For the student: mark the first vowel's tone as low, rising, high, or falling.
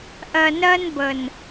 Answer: low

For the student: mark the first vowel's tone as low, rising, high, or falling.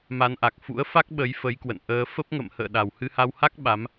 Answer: rising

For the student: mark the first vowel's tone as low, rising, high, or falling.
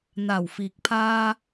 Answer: low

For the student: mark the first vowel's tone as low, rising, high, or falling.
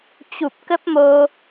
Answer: low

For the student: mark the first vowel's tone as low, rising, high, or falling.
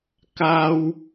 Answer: high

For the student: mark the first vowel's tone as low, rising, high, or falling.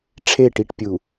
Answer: falling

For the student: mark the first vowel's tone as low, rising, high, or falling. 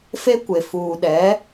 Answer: high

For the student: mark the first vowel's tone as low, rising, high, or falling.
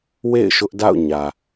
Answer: falling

